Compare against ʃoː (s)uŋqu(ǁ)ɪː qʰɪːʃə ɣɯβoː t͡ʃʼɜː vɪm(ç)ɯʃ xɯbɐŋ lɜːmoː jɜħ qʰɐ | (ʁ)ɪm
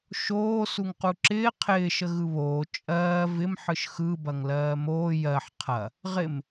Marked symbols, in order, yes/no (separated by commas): yes, yes, no, yes